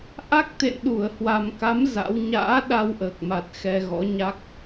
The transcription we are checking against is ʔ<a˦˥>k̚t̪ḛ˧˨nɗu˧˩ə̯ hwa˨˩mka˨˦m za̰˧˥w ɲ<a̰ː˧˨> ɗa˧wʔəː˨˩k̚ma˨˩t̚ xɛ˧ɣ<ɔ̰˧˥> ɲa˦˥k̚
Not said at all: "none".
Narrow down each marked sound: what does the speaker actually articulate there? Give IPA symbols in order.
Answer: a˦˥, a̰ː˧˥, ɔ̰˧˥

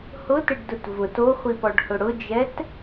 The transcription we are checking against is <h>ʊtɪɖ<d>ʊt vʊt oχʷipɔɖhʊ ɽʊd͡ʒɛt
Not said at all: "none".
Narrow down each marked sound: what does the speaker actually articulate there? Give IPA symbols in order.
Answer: h, d

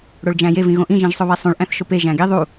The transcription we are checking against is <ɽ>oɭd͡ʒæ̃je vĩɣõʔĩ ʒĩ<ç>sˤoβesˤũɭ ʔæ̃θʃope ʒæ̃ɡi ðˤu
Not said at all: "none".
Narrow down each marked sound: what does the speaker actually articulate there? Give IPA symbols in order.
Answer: ɽ, ʒ

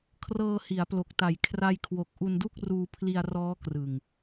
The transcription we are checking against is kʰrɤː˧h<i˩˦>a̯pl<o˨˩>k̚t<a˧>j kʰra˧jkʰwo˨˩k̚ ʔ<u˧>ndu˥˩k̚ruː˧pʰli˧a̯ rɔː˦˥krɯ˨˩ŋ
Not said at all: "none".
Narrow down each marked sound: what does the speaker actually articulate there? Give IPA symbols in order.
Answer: i˩˦, o˨˩, a˨˩, u˧

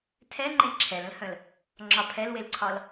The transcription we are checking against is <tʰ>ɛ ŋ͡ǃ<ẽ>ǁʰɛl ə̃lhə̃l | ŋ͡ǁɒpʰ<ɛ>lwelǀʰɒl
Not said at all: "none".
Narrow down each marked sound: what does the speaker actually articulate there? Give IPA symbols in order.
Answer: tʰ, ẽ, ɛ

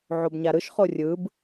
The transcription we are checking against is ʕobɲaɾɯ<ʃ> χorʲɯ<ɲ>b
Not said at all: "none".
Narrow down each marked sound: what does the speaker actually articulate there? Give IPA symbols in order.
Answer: ʃ, none

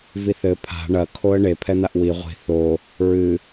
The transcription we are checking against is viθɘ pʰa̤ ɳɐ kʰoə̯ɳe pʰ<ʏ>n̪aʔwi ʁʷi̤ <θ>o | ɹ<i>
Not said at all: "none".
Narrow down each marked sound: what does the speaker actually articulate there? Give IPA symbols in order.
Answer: ɛ, θ, ɨ

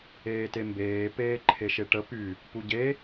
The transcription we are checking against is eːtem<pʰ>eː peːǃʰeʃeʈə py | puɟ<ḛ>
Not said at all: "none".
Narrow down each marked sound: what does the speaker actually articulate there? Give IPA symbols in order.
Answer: b, e

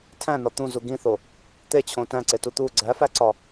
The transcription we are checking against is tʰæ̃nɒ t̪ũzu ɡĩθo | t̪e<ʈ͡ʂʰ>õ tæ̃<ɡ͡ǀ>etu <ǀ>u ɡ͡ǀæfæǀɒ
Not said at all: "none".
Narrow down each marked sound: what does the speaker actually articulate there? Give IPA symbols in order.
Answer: t͡ɕʰ, ǀ, t̪

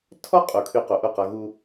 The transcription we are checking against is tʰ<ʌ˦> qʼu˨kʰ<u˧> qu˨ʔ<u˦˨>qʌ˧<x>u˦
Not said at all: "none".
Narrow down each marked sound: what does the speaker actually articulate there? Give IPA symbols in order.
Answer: ɔ˦, y˧, u˦˨, ɣ

